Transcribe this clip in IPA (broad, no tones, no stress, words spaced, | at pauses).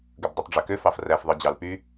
ɡɯbdˤutˤɖ͡ʐøkø fɑfræf ðˤɯd͡ʑɑlpy